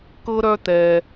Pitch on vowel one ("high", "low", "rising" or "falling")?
high